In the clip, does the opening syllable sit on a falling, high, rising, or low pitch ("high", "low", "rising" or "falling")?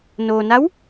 low